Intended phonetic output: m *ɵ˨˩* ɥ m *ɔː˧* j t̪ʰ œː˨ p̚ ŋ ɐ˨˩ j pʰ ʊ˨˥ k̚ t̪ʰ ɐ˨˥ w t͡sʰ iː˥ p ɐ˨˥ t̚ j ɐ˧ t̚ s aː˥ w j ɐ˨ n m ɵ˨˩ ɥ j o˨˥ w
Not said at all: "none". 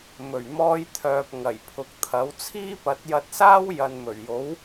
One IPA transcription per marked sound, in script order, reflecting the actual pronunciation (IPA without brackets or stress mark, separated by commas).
ɵ˨˩, ɔː˧